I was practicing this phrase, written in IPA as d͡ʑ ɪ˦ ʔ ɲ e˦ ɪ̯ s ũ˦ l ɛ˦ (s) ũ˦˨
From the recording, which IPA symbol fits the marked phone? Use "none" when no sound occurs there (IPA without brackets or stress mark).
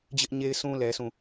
s